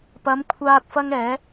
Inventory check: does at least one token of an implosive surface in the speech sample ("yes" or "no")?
no